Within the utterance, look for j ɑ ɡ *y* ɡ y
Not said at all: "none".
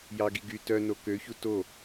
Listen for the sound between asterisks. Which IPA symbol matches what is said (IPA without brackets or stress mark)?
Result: i